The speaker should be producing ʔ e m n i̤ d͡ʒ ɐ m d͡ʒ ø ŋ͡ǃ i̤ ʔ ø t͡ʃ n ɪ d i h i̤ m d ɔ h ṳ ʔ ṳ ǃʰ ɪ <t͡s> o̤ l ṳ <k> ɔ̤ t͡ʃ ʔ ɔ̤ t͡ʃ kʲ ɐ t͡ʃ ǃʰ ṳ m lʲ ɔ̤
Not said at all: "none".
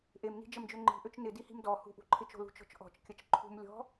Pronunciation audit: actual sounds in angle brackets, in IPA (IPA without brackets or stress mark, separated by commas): t͡ʃ, t͡ʃ